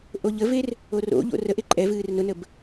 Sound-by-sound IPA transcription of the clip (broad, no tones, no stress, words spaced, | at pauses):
ʔoʎəver | oro̰ʎo̰ rə ʔeǃʼɛvɨːr nʊnəb